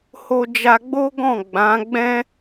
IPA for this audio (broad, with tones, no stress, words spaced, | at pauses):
ho˧d͡ʒa˧ɡ͡bo˦ɡɔ̃˦˨ ɡ͡bã˨˦ ɡ͡bɛ̃˦